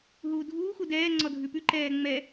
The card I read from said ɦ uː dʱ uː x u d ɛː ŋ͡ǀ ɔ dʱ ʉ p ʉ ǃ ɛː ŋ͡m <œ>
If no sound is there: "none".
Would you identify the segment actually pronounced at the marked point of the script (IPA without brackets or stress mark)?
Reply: ɛ